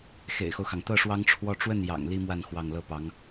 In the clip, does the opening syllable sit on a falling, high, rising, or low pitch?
low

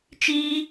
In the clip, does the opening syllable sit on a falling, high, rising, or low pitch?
high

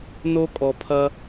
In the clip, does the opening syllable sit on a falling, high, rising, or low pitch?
high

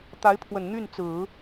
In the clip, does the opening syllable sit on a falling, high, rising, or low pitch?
rising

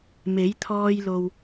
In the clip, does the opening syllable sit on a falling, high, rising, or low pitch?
rising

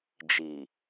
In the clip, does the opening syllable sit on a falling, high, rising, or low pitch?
low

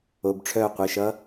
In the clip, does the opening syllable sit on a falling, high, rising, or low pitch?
low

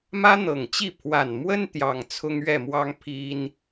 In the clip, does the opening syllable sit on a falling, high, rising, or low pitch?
high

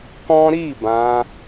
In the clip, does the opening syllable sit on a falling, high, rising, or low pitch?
high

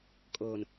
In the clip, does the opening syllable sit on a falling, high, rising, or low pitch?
low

